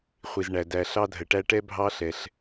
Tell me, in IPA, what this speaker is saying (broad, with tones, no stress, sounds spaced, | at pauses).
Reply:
χʷ i˩ z ɳ æ˩ d æ˩ ɬ ɑ˥ dʱ ə˩ ʈ æ˥ ʈ ɛ˥ bʱ ɑ˥ ɬ ɛ˩ ɬ